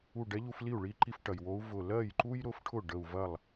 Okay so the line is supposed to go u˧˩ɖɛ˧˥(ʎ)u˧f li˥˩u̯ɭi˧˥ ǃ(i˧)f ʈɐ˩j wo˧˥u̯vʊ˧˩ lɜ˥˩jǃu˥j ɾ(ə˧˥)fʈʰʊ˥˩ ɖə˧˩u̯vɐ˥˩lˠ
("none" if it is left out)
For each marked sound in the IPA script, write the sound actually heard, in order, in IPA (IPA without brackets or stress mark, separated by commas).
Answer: ʎ, i˧, ʊ˧˥